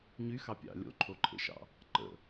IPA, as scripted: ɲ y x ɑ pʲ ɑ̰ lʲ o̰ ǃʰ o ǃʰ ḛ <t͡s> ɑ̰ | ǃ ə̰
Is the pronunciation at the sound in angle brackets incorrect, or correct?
incorrect